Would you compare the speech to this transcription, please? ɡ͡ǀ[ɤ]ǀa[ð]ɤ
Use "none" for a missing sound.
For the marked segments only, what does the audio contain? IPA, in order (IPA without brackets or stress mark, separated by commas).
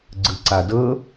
ɯ, d